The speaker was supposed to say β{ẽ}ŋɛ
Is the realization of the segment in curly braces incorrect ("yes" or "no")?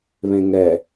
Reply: no